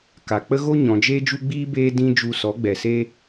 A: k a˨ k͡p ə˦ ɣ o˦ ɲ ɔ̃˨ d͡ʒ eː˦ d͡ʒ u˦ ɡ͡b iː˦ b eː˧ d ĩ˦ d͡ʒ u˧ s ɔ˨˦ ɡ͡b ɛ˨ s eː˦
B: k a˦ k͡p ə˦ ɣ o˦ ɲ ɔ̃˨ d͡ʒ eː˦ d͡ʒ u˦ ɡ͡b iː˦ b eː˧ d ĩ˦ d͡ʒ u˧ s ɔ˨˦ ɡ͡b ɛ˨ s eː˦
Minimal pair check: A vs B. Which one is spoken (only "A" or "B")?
A